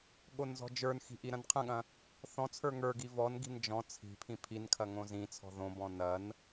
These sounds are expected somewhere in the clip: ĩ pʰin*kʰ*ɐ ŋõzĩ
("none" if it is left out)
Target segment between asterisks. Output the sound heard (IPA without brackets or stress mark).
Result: kʰ